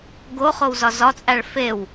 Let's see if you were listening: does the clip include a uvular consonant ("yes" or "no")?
yes